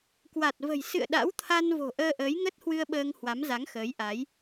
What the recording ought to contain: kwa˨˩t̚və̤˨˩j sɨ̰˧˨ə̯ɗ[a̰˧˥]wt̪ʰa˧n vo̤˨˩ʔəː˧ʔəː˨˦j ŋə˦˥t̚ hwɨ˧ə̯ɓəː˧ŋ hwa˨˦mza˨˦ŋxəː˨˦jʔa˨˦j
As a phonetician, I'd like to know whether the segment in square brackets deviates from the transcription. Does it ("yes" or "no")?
no